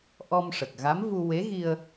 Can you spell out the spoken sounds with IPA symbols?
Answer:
ʔ ɔ˧ m ʂ ə˨˩ k̚ ɣ a˧˥ m v u˧ w e˧˥ ɣ i˧ ə̯

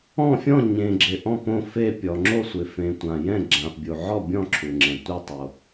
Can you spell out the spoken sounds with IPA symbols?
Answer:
ɔ̃˥˨ fʲ ɔ̃˥˨ ɲ ẽ˨ ɡ͡ǁ ɪ˨ ʔ ɔ̃˥˨ p õ˥˨ f e˥˨ pʲ ɔ˨ ŋ͡ǁ o˥˨ sʷ ɪ˨ f ẽ˨ tʷ ã˨ j ɛ̃˥˨ ɡ͡ǁ ã˨ f bʲ u˨ ʕ ɔ˥˨ bʲ ɔ̃˥˨ ǁʰ u˨ ŋ͡ǁ ɛ̃˨ tʷ i˥˨ tˤ o˨

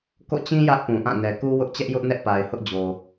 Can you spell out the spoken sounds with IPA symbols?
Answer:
k o̰˦˨ t͡ɕ ĩ˦ j ä˦ ʔ p ũ˨ ʔ ã˦˨ n ɛ˨ k u˦ w ʊ˦ ʔ t͡ɕ ɛ˦ ʔ j ʊ˦ ʔ n ɛ˦ ʔ p a˨ ɪ̯ h ʊ˦ ʔ d͡ʑ o˨

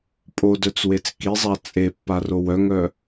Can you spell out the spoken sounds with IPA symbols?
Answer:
pʼ o d œ t͡s w e t͡s k i zˤ a t͡sʼ e pː a r o w œ ŋ œ

